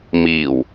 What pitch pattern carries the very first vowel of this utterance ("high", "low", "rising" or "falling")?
low